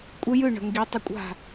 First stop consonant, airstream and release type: ejective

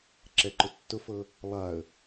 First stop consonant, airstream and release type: click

